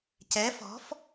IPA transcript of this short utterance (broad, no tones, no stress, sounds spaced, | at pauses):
c ɛ f ɔ̤ f